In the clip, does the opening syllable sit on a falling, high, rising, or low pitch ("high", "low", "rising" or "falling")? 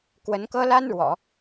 rising